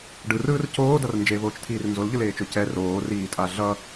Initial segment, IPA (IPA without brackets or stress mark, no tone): ɖ